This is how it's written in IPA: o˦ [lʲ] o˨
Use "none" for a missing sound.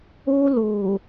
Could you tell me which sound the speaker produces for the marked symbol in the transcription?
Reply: l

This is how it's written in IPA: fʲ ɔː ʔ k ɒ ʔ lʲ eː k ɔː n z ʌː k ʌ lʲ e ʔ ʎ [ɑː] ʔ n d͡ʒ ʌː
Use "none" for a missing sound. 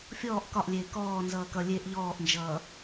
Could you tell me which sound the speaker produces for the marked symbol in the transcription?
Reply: ɔː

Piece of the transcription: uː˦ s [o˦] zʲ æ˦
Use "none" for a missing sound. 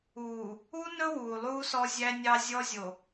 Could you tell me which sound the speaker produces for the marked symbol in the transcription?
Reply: ɔ˦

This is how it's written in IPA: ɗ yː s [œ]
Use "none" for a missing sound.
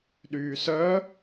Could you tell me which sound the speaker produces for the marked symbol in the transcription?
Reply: œ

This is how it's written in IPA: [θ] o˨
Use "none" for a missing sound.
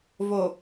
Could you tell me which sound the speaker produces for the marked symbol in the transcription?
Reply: v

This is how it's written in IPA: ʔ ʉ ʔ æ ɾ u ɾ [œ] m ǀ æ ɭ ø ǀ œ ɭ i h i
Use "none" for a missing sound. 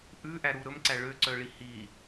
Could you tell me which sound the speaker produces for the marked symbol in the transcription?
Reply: ɵ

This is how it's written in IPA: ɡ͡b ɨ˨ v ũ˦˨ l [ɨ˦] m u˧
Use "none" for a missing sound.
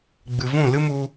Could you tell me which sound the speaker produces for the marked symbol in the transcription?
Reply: ɨ˦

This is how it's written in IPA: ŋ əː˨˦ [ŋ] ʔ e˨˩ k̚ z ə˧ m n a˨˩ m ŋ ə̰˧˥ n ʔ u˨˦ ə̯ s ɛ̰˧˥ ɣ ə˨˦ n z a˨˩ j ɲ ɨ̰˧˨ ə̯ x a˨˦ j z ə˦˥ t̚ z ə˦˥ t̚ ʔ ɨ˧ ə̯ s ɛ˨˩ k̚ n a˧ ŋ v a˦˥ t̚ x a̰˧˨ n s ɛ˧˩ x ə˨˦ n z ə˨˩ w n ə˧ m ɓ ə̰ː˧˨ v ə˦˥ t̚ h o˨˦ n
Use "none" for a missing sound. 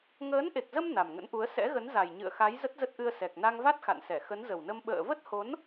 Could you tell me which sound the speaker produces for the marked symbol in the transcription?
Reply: n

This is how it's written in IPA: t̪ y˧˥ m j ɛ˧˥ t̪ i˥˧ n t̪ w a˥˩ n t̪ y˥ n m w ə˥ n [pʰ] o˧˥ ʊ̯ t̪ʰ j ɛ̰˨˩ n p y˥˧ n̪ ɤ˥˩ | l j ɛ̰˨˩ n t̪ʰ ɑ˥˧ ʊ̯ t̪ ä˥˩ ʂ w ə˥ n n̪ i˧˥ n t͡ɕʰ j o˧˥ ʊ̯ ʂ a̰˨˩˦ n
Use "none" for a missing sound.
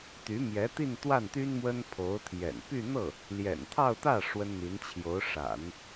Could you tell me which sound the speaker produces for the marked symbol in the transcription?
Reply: pʰ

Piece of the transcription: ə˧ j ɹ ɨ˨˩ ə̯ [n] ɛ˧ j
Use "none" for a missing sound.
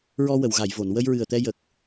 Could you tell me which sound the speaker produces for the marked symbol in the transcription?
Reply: t̪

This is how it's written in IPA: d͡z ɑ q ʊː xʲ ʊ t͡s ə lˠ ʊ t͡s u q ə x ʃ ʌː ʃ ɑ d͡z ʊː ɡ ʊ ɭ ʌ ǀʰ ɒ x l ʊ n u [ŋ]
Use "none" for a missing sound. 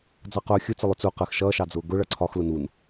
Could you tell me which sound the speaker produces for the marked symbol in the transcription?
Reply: n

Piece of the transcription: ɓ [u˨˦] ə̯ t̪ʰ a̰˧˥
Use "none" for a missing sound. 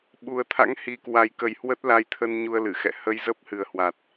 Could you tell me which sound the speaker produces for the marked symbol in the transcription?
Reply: u˨˩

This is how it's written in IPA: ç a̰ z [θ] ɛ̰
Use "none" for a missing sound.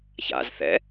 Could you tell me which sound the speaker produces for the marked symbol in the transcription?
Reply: θ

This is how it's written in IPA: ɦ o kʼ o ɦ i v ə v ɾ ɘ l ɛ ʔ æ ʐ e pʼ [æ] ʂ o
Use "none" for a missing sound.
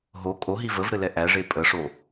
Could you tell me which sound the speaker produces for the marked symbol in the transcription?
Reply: ə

